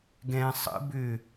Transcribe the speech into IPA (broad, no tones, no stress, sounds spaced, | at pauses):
ɡ ɛ̃ sˤ ə̰ b ʏ